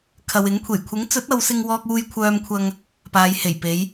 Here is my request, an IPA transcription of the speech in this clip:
kʰɐ˨wɪ˨˥ŋkʷʰe˨˩j kʷʰɪ˨˥ŋt͡sɵ˨˥t̚ ɐ˨˧wsɪ˧ŋwɔː˧k̚uː˧j kʷʰœː˧mkʷʰɐ˧ŋ | paː˨˧jhe˨˩j pe˨˧j

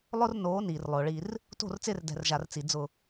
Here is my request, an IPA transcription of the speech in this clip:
lˠʊ˦r noː˨˦ niː˨rlˠʊː˨ɭi˦r | to̤˦˨rt͡sɪː˦r dɛ̤˨rʒa˨rt͡si˨ d͡zʊ˦˨

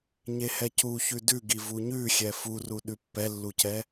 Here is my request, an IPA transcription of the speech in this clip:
ɲehɛcu çʉdʉɡi vuɲʉxʲɛ furu ɗʉpːɛlːucɛ

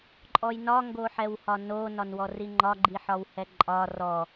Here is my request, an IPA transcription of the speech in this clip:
ǃʼɔjnɒ ŋɡoħɛwhɒno nɒnwɔriŋ͡ǃɒ ɡ͡ǃiħɒwhɛǃʼɒ rɔ

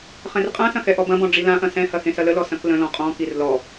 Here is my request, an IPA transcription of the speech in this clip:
χɛ̃rqʼãsɐ̃ xɛʔɔbɐ̃bɔ̃ ɖ͡ʐilãʔɐ̃ sɛ̃hɐ xẽsɐləlɔ sɐ̃klə̃lɔ̃ qʼɔ̃kir lɔ

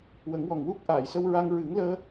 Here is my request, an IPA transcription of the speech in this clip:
wə˨˩˦ŋwɔ˨˩ŋwu˦˥k̚ ʔaː˨˩˨jsə˧wɹa˧ŋ ɹɨ˨˩˦ŋləː˧

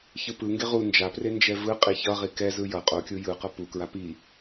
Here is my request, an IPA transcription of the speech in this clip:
çɯpɯŋɡe ʁu nd͡ʒapre nd͡ʒɛvɯqʼi çʌʁi kɛzɯ jʌ qʼokʲu jɯqʌ pukɹa pi

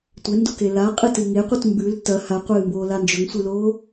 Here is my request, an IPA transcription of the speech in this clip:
tʷendoke laqʼɨtɨ ŋeqʷɨt mbʉl tɐ haqʷɨːmboːla nd͡ʒɵŋsʷɨloː

